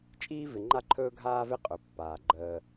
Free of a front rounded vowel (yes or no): yes